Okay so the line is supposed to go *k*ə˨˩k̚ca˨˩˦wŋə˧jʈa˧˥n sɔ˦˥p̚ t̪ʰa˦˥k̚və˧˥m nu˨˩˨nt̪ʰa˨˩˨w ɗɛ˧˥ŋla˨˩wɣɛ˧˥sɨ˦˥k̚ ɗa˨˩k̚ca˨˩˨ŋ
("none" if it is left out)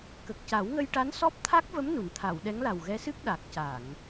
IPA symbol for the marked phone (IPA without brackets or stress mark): k